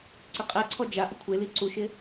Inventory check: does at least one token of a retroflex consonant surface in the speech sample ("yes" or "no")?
no